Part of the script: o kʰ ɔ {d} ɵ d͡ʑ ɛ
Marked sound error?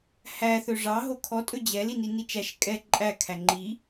yes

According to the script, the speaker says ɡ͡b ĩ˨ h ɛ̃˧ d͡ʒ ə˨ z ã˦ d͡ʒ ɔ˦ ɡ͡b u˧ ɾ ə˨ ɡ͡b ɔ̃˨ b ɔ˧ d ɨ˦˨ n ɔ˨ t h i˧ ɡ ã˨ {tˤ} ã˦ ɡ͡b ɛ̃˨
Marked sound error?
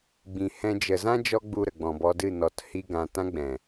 yes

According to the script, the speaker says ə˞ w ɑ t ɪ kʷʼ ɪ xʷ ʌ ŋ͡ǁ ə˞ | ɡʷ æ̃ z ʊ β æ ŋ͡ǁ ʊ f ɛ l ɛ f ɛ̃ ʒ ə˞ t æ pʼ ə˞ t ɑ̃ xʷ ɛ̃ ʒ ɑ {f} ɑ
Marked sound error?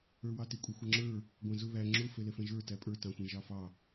no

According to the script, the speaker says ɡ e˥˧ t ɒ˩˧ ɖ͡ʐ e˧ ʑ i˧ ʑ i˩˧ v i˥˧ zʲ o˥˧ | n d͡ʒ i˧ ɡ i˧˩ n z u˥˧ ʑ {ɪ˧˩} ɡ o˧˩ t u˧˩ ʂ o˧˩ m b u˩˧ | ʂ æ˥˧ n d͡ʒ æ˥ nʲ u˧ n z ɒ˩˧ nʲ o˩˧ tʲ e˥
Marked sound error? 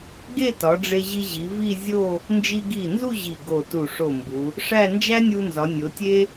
yes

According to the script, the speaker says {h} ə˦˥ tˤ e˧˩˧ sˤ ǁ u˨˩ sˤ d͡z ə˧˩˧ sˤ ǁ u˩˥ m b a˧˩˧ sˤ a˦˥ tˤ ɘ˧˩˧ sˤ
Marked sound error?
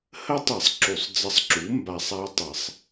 no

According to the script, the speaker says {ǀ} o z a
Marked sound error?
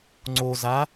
yes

